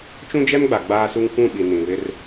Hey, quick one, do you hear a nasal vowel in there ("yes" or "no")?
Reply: yes